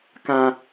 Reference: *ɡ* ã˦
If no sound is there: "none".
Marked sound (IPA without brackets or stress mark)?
k